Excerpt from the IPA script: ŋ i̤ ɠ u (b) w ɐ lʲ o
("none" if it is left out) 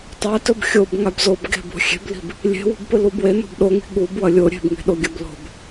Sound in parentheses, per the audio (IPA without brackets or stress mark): b